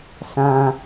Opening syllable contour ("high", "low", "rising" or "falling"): low